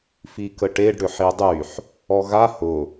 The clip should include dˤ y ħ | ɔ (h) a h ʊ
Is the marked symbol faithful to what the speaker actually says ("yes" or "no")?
no